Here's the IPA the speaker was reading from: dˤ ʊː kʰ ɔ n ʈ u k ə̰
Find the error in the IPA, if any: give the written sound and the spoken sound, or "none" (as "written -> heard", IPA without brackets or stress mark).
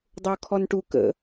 none